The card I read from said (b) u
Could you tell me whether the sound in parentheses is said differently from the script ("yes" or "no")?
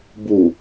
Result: no